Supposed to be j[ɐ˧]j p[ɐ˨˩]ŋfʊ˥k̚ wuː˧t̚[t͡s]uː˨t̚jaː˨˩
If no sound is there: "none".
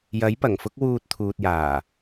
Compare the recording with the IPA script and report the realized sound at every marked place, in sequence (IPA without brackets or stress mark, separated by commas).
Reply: ɐ˨˥, ɐ˨˩, t̪ʰ